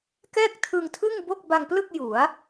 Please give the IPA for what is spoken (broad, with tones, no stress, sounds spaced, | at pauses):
k ɛː˥˩ k̚ tʰ ɯ˧ ŋ tʰ ɯ˥˩ ŋ b o˥˩ k̚ b a˧ ŋ p l ɯ˥˩ k̚ j u˩˦ a̯